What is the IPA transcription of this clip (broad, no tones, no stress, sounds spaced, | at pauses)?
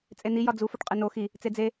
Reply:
t͡sʼ e n i j ɒ d͡z u f o ʈ qʼ e n o x i | t͡s e d͡z e